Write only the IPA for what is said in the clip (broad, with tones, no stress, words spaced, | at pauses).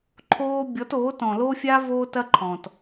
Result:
ǃʰoː˦ bʲɔ˨˦toː˨˦t ɔ̃˨lo˦fʲa˦ voː˦tɐ˦ ǃʰɔ̃˨t